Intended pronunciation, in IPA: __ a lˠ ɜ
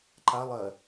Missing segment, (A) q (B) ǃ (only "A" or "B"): B